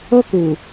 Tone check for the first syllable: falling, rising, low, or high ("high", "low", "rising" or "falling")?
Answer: high